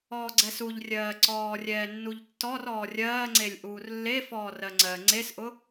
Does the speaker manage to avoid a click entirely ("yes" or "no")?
no